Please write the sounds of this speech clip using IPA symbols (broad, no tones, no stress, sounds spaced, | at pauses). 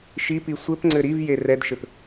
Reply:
ʃ i p i sʷ ɘ p ŋ͡ǀ ɘ ɾ i v j e r ɛ d ʃ ɘ p